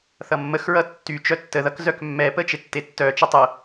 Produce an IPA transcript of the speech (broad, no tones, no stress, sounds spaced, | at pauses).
θ ʌ mː ə x ɹ ʌ tː y t͡ʃ œ tː ə ð ʌ k z œ k mː ɛ p ə t͡ʃ e tː e tː œ t͡ʃ ə tˤ ə